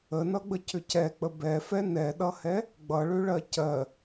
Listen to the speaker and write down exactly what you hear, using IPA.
ənʌɡ͡bəcʏ cɛk͡pə bɛfɛ nɛɗʌhɛ | ɡ͡bʌɭʏɭɜ cɜ

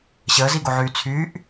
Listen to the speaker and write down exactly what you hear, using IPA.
ɕəːziɡoʕyː t͡sʰyːʔ

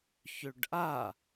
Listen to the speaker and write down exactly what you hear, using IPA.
çøɖʔa

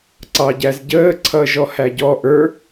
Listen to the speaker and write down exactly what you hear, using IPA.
ǀɑɟæzɟəː ǀʰʌːʒɔhæɟɔ ʔə˞

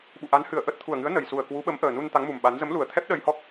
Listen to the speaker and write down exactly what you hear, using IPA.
ɓṵ˧˨ ʔa˨˦nhɨ˨˩ə̯ʔə˦˥t̚ t̪ʰu˨˩ə̯ŋɨ˨˦ə̯ nə˨˩jsu˨˩ə̯kwu˨˦ɓə˨˦m ʔəː˨˩nu˧n t̪a˨˦ŋmu˨˩m ɓa˨˦n zə˨˦mlu˨˩ə̯ t̪ʰɛ˦˥p̚ ɗə˧jhɔ˦˥k̚

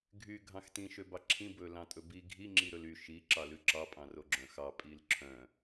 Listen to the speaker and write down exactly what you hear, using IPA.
ɡʱy ɡʱɑ̃xtĩ ʃøbɑǁʰĩ bɵlɑ̃tʼɵbi ɡʱi ŋ͡ǁiɾɵly ʃi ǁɑlʉǁɑ pʼɑ̃roɡ͡ǁœ̃xɑ pʼilǁʰœ̃

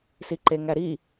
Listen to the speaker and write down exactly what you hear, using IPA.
siǃeŋæɾi

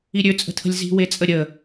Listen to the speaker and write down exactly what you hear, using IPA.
iɾʲøt͡sʼə̤tʰə̤lʲ zi̤wet͡sʼə ɾʲə

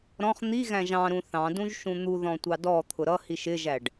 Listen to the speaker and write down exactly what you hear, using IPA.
ɾɔ̃χ n̪iɣæ̃ʒ ɑ̃ɾũ θɑ̃dũʒ ʃũn̪u ðɔ̃tʷɑdɔ t̪ʰʊɾʌ hiʃɪʒæɖ

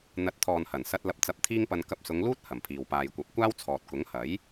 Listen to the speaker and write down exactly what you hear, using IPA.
n̪ɐ˨˥t̚t̪ʰɔː˨nhɐ˨˩nsɐ˧t̚ lɐ˧p̚t͡sɐ˧p̚t̪ʰiː˥ŋpɐ˧n kɐ˧p̚sʊ˨˧ŋluː˥t̚ hɐ˨˩mpʰiː˨w paː˨jkʷɐ˨˥p̚kʷaː˥wt͡sʰɔː˨t̚ kʊ˨˥ŋhɐ˨˥j

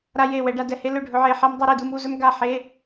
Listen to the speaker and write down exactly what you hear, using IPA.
ɾa˧je˧˩ wɛ˩˧ɖa˩˧ dɛ˩˧he˧˥ lɵ˧˩ɖʱɵ˩˧ ʕe˩˧˩ħɛ˧mdˤɛ˧ɾe˧˩ du˧mu˥˨ zɵ˧mɡa˧˩ħe˩˧˩

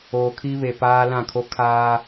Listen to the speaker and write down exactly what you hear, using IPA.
oː˨kʰi˦ βe˨paː˦ lã˦˨kʰo˦ kʰaː˦

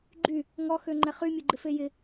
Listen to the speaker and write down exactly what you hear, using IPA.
ɡ͡ǃy | ŋɔ xøŋ͡ǃɛχy mʲoɡ͡ǃɪfejɪ

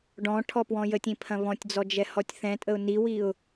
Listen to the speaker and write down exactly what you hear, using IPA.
ɖɔ̃ ʈʰɔpwɔ̃jətʲĩ pʰɐ̃βɔ̃tʲd͡zɔ d͡ʒɛhɔtʲθɛ̃tʼəʊ̯ niwiʊ̯

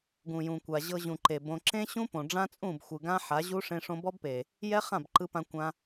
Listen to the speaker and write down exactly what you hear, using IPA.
ɡũ˨jũ˨kʷa˨ ʑɤ˧ʑũ˨ ǃe˨bõ˧ ǁẽ˦ɕũ˦ põ˨ɖ͡ʐã˦t͡sʼũ˦˨bxʷɯ˨ ɡã˦ħa˨˦ ʑu˦ ʂẽ˧ʂõ˧bɔ˦bpe˨ | jɛ˦χã˦˨bǃɯ˧pã˧ kʷã˧

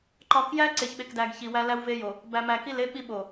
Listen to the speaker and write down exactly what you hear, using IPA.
ǃɒ˨kjæ˦ ǀe˨çɓe˨kdæ˨ɡ çi˨wæ˦ læ˦wve˦jo˨ | bæ˨mæ˨ki˦˨le˦ ɓi˦ɓo˨

